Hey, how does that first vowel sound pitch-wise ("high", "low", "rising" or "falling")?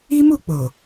high